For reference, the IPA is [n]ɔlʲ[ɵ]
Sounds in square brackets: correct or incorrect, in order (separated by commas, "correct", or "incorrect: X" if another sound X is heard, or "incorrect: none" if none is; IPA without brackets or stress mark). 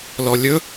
incorrect: l, correct